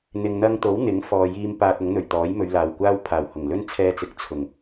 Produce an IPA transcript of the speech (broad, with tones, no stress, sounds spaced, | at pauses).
n̪ ɪ˨ ŋ n̪ ɐ˧ ŋ t̪ o˨˥ w n̪ ɪ˨˥ ŋ f ɔː˨ j iː˧ m p aː˧ t̚ ʊ˨˥ ŋ n̪ ɵ˨˩ ɥ t̪ ɔː˨˥ j m ɵ˨˧ ɥ l aː˨˩ w kʷ aː˥ w pʰ aː˨˩ w h ʊ˨˩ ŋ l ɵ˥ n t͡sʰ ɛː˧ t͡s ɪ˨ k̚ t͡sʰ ʊ˨˩ ŋ